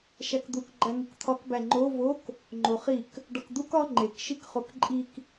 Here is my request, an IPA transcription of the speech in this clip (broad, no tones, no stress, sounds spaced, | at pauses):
ʃ æ k d̪ u k ɡ͡ǃ æ ŋ u k t̪ʰ ɒ k b æ ŋ͡ǃ o v o k | ŋ͡ǃ o χ i k | ɖ ɒ k d̪ u k ɒ ŋ͡ǃ e k ʃ i k χ o k ǃʼ i k